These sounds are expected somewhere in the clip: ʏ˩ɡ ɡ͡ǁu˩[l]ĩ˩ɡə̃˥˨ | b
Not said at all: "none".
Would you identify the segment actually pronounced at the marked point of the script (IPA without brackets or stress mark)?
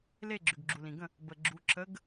l